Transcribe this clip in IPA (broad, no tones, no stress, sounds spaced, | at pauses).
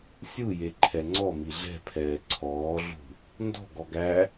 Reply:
sʲ u j e ǃʰ ɛ ŋ͡ǀ ɔ m i ɮ ɛ̤ pʰ ɛː ǀʰ ɔː ɮ ṳ | n d ɔ̤ ɡ ɔ ɡ æ